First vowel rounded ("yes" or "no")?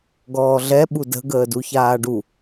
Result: yes